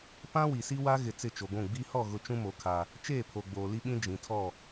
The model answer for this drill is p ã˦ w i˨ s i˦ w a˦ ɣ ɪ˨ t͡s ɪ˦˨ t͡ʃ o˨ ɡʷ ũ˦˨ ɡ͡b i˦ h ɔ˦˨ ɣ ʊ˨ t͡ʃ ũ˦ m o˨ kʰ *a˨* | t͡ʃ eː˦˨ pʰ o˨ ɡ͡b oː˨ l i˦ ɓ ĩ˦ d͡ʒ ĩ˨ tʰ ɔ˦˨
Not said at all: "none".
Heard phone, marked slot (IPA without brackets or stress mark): a˨